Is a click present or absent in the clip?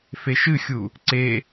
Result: present